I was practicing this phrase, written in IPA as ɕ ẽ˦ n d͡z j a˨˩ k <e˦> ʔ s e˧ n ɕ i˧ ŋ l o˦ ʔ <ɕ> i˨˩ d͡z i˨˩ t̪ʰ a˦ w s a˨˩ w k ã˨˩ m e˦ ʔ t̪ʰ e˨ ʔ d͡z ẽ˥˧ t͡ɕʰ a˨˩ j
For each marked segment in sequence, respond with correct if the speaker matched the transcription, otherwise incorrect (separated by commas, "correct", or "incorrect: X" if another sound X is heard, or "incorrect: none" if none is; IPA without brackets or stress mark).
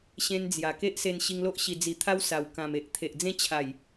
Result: correct, correct